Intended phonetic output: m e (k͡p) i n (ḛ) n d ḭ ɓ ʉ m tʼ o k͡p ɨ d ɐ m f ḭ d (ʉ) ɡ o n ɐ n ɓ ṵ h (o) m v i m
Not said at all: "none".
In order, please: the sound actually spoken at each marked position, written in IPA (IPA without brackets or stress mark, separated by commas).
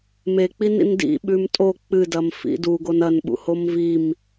k͡p, ḭ, u, o